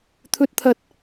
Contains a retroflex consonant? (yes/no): no